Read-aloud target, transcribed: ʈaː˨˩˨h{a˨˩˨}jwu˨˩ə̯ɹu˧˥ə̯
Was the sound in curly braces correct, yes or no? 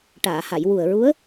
yes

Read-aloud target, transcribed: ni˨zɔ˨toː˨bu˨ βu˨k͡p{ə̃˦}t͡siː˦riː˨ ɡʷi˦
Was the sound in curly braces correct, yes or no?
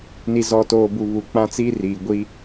no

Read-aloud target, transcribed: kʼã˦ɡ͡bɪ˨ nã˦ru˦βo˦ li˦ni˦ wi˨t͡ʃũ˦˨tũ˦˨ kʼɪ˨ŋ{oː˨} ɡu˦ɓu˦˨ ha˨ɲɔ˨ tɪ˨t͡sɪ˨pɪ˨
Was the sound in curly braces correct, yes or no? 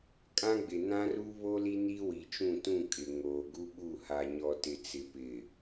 yes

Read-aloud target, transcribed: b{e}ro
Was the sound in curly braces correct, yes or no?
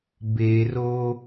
yes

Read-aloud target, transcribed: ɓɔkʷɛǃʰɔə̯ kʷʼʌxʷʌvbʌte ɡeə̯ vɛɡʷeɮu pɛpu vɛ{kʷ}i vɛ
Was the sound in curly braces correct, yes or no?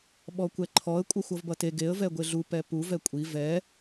no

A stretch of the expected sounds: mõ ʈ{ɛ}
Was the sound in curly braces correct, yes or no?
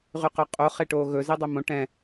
no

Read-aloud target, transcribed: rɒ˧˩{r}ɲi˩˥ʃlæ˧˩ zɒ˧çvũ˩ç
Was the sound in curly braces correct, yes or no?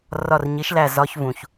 yes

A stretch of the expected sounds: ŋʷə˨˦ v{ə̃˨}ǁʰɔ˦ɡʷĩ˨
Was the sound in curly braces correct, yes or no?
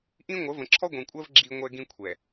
yes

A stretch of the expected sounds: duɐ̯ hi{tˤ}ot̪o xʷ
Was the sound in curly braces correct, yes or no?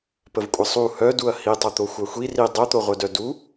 yes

